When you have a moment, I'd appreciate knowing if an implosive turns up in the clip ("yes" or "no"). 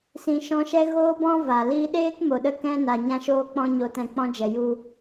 yes